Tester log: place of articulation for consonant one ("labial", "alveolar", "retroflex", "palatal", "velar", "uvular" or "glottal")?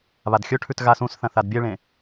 labial